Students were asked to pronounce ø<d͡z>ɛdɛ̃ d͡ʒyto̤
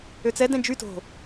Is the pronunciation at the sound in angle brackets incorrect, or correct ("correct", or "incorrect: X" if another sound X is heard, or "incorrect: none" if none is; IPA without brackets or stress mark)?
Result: incorrect: t͡s